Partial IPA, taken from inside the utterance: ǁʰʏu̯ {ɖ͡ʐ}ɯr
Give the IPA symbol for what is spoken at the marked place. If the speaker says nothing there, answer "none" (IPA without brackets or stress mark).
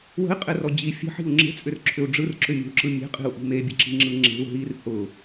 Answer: ɖ͡ʐ